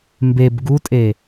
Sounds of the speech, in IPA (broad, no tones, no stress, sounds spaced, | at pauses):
m b e b ɡ u tʼ e